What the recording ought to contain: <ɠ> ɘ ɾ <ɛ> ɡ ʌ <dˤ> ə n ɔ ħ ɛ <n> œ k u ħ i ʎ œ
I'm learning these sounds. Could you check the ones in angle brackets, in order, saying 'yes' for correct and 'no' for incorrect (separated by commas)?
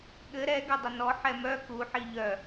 yes, yes, yes, no